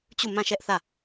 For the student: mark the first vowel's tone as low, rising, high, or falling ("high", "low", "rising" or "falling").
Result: falling